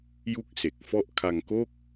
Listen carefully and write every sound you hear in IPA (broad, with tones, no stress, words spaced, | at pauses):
ju˥˩k̚se˨˩k̚fɔ˥˩ʔ kʰa˧ŋko˥˩k̚